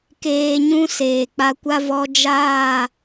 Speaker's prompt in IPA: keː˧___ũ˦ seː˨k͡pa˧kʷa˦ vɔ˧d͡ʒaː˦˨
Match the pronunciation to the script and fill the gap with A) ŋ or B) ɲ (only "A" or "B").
B